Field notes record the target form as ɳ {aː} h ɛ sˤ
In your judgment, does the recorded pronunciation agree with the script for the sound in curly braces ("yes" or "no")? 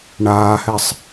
yes